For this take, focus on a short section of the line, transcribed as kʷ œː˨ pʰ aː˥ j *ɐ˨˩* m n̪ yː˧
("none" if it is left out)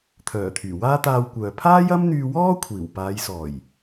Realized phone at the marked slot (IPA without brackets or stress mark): ɐ˥